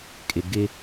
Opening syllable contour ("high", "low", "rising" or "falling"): low